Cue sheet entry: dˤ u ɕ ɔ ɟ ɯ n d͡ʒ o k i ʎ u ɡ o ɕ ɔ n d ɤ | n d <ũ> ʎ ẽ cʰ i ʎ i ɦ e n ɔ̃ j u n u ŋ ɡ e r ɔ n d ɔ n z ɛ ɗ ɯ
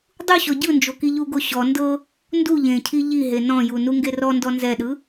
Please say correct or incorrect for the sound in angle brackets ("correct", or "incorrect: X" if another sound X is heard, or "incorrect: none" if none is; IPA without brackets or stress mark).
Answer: incorrect: u